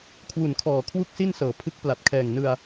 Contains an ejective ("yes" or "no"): no